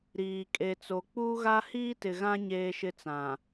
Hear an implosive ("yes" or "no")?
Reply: no